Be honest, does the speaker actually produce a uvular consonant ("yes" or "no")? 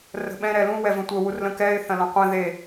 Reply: yes